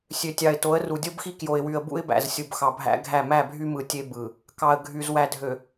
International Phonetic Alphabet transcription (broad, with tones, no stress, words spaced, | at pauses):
sʲø˨tʲɑ˨ɪ̯to˨˦ə̯ru˨ dʲo˦bxi˦kjo˨ɪ̯wy˨ə̯ bṵ˦ɪ̯bæ̰˨zsʲu˨b xɑ˨bʱæ̰˦ɡʱæ˦˨ mæ˦˨bʱy˦mɯ˨ tʲe˦bɯ˨ | kɑ˨ə̯ ɡʱy˨z wæ˨dʱø˨